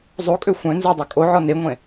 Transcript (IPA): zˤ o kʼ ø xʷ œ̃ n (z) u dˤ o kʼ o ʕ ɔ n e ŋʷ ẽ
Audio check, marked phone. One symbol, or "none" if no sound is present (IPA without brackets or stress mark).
z